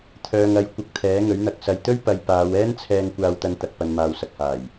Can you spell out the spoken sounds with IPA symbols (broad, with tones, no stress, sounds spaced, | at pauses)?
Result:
t̪ʰ œː˨ ŋ ɐ˨˧ j kʷ ɐ˧ k̚ t̪ʰ ɛː˨˥ ŋ ɵ˨˥ ɥ n̪ ɐ˨˥ k̚ s ɐ˨ j t̪ ɵ˥ ɥ p ɐ˨ j p aː˨˧ w ɛː˥ n t͡sʰ ɛː˧ ŋ kʷ aː˧ w t̪ ɐ˧ n t̪ ɐ˨ k̚ p ɐ˨ n m aː˨ w s ɐ˨ k̚ h aː˨˩ j